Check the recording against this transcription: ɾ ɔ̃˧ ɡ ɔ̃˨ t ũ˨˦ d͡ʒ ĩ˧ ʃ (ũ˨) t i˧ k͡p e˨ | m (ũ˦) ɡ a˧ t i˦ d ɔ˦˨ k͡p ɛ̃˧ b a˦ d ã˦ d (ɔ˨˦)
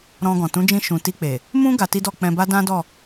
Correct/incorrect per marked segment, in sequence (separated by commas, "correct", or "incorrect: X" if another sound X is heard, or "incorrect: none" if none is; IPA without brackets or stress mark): correct, correct, incorrect: ɔ˦˨